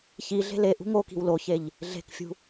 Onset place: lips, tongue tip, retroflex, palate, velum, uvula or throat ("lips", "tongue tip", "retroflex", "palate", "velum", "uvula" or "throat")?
palate